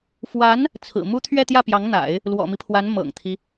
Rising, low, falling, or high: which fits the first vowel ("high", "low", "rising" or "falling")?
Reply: rising